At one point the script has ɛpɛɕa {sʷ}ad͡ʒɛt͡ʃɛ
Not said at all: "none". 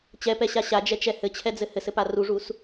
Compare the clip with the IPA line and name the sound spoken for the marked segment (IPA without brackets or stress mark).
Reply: ɕ